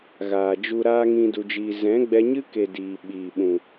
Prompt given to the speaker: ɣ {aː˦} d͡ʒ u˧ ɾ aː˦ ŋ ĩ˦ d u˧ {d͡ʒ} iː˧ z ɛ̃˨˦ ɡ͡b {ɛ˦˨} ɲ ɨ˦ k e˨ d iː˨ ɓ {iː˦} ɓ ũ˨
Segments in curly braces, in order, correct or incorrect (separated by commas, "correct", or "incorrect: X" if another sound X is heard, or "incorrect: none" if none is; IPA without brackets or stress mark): incorrect: aː˨, correct, incorrect: ɛ˧, incorrect: iː˨